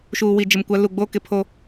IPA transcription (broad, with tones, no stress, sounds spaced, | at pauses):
ʃ uː˨ w i˨ d͡ʒ ɪ˨ m kʷ a˨˦ l u˨ ɡ͡b oː˦ k ɪ˨ pʰ o˦